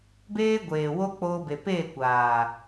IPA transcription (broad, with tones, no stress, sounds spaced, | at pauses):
b eː˦ ɡʷ eː˨ w o˦ k͡p oː˧ b e˨ p eː˦˨ kʷ aː˨